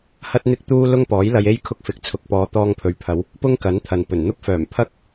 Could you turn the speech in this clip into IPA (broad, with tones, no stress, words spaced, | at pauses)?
hɐ˥t̚n̪ɪ˥k̚t̪uː˥ lʊ˥ŋpɔː˨˥jlɐ˧je˥j kʰʊ˧k̚fɪ˨k̚ t͡sʰʊ˨˥k̚pɔː˨˧ t̪ɔː˧ŋpʰɵ˨˧ɥpʰɐ˨˧w | pʊ˥ŋ kɐ˨˥nt̪ʰɐ˨npɵ˨˩nn̪ʊ˥k̚ fœː˨˩mpʰɐ˥k̚